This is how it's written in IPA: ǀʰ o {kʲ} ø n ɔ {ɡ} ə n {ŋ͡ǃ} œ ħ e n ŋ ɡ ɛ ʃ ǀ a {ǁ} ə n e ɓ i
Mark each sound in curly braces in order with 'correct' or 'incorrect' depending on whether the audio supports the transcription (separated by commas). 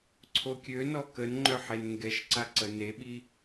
correct, incorrect, correct, incorrect